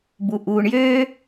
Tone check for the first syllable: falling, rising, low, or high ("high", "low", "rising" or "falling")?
low